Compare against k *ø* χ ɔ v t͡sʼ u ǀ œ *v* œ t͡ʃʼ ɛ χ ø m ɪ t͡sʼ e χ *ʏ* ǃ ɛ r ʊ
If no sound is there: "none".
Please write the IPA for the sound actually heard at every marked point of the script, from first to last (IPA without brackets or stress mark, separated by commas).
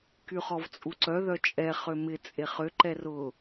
y, ð, ʏ